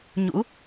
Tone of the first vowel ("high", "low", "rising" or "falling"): rising